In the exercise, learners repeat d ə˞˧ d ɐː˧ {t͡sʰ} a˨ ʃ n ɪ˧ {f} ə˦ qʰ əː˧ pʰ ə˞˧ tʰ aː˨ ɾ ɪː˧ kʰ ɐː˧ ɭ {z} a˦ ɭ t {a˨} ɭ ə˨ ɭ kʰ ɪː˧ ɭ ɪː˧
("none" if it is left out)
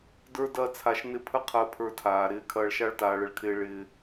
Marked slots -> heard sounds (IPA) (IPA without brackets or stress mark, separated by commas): t͡sʰ, pʰ, ʃ, aː˨